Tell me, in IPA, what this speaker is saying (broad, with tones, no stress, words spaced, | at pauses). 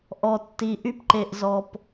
ʔɔ˨tːi˨ ʔy˦p ǃe˨ʔzɔ˨p